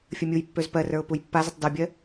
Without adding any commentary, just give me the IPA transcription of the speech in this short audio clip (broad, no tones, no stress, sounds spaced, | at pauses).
fʲ ə mʲ u j pː ø z p ɜ r ə˞ ʊ̯ p u j pː a z ə tˤ d u bʲ ɜ